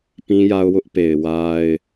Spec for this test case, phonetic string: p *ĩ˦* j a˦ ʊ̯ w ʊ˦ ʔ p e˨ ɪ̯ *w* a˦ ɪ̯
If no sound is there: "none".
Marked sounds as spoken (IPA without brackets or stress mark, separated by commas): ĩ˦, w